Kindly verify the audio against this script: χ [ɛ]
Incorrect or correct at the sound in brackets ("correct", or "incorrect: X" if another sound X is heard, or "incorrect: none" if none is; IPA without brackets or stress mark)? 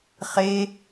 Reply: incorrect: e